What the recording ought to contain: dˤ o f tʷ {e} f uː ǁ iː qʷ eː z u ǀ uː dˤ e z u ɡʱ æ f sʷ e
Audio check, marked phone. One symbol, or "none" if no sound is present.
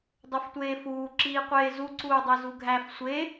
eː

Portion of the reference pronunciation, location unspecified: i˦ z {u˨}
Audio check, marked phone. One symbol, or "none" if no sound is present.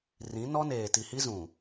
ũ˨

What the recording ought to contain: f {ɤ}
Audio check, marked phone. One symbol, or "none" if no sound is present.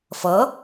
ɤ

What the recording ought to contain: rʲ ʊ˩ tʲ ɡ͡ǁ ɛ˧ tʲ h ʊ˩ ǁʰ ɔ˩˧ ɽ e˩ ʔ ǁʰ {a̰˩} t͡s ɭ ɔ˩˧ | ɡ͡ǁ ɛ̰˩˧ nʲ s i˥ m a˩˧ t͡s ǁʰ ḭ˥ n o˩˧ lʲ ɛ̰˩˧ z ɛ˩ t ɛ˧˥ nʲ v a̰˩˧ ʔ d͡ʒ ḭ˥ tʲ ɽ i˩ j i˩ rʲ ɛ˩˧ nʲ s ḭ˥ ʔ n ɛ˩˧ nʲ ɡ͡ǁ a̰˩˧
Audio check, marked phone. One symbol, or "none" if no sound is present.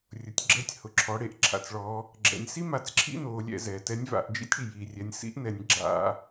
a̰˩˧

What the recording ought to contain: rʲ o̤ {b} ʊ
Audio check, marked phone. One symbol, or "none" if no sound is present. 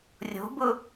b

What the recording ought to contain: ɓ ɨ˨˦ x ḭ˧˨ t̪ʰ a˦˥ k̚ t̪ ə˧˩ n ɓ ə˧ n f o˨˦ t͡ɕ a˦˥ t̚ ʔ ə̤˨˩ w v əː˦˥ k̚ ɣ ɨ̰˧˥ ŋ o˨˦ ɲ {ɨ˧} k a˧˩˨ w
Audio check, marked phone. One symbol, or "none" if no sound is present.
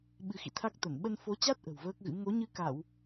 ɨ˧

